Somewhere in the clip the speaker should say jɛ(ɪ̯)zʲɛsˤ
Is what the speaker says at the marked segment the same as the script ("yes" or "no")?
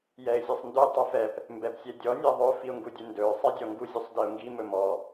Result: yes